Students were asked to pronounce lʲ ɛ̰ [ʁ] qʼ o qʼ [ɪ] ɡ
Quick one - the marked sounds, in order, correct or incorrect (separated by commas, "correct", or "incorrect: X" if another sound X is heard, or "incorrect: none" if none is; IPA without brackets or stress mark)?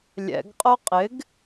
incorrect: ɡ, correct